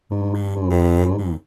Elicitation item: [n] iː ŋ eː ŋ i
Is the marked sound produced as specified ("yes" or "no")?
no